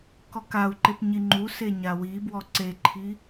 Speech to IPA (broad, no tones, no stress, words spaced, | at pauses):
kɔkau̯ǃep ɲiŋ͡ǃuse ɲawibwɔ ǀeǃʰi